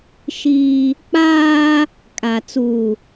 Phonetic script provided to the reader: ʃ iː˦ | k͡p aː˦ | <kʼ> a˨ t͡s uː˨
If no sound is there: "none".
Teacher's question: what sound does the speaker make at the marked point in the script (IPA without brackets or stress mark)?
kʼ